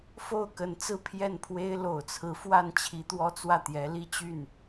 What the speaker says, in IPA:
f o˥˩ ʊ̯ k ə˧˥ n t͡s ɹ̩˥˧ pʰ j ɛ˥˩ n pʰ w e˥ ɪ̯ l o˨˩ ʊ̯ t͡sʰ ɹ̩˧˥ f w a˥˩ n t͡ɕʰ i˧˥ t̪ w ɔ˥ t͡s w ä˥˩ t̪ j ɛ˧˥ l i˥˧ t͡ɕ y˥˩ n

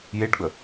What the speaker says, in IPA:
j e ɖ ɡ͡b ə

